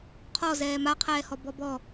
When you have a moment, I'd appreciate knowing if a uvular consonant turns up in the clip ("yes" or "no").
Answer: yes